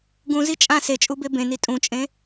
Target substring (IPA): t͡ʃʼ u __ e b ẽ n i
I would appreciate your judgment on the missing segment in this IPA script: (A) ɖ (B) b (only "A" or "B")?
B